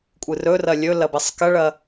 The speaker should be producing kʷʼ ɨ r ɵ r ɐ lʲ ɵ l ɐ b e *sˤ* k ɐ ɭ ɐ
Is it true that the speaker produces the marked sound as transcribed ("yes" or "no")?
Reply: yes